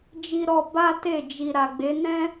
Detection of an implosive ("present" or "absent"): absent